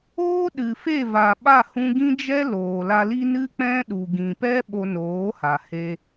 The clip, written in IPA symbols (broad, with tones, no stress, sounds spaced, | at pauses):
oː˦ ɗ ɨ˨ f e˦˨ v a˨ ɓ a˦˨ h ũ˧ ɡ ĩ˦ d͡ʒ ɛ˦ l oː˨ l a˧ l i˦ n ɨ˦ k͡p ɛ̃˦ ɗ u˨ ɡ ĩ˨ p ɛ˦ ɓ o˧ n oː˨˦ h a˨ h e˧